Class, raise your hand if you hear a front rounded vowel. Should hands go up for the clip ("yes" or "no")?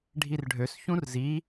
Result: yes